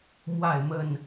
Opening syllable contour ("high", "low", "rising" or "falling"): falling